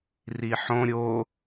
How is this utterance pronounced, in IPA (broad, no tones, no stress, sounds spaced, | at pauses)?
r i ħ õ ɾʲ o